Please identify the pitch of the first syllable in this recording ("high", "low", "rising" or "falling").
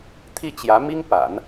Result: falling